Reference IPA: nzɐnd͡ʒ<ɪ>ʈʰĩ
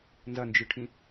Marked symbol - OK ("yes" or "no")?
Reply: no